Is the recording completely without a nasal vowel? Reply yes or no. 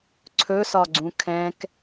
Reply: no